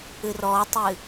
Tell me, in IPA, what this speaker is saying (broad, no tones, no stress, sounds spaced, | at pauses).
ɨ r ɔ tˤ ɨ